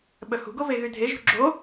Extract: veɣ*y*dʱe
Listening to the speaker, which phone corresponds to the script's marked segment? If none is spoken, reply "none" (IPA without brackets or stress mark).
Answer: y